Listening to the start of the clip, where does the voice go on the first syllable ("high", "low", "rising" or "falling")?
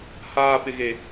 low